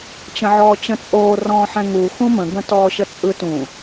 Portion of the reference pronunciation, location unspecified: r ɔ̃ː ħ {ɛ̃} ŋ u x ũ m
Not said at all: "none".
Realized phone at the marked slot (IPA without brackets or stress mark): ɛ̃